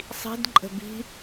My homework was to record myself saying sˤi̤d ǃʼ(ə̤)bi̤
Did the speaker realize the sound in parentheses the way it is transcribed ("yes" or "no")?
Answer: yes